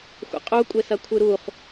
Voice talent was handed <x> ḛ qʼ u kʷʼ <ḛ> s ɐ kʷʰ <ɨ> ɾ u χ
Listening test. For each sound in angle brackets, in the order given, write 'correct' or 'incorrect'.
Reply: incorrect: xʷ, incorrect: e, correct

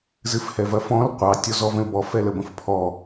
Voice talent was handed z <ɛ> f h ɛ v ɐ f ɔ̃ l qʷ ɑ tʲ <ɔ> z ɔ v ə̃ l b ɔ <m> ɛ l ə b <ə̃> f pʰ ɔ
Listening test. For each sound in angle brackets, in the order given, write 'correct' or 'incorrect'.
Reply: incorrect: ɨ, correct, incorrect: f, correct

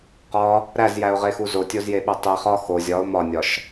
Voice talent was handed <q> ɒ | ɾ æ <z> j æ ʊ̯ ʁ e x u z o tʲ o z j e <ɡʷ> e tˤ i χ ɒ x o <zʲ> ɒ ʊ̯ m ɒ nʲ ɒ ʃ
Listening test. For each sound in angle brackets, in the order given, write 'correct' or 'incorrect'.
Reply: correct, correct, incorrect: ɓ, correct

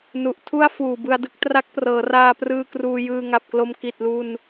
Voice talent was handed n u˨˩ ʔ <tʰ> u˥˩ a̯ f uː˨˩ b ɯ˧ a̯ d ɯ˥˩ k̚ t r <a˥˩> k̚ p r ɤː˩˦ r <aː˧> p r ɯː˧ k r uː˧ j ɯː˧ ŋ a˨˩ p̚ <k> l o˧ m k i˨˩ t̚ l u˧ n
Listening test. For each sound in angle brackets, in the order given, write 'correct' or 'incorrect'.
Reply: correct, incorrect: a˦˥, correct, correct

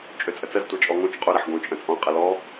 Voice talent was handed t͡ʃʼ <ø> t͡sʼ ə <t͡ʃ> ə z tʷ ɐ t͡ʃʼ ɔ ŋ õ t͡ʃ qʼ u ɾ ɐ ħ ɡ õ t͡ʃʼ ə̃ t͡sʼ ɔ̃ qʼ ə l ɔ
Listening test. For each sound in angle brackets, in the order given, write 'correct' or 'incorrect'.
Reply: correct, incorrect: t͡s

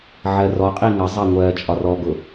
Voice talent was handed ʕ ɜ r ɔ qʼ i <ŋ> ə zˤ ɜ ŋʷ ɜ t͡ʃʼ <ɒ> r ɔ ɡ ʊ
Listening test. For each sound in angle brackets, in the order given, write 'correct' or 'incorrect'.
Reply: correct, correct

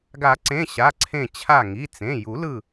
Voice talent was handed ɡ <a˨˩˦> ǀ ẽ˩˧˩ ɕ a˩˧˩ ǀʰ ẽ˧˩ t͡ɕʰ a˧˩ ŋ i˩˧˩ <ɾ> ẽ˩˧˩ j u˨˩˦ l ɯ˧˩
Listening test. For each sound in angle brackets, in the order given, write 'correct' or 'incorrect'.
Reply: correct, incorrect: t͡s

